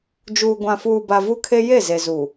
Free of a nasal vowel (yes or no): no